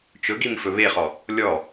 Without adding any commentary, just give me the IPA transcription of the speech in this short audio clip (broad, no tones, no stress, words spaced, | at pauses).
t͡ʃɵɡim fɵβeχɔ | lʲɔ